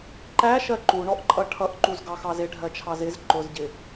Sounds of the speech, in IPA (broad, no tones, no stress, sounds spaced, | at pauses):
ǃ æ ʃ ɜ ǃ u ɳ ɔ ʔ ǃʼ ʌ ʈʰ ʌ ʔ ǃ u z ɡ ɑ x ɑ z ɪ ɖʱ ɜ t͡ʃʰ ɑ z ɪ z ǃ ʊ z ɟ ɪ